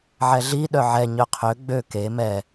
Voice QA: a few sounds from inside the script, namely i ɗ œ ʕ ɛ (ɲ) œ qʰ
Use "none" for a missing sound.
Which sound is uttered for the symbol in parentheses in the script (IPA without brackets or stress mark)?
ɲ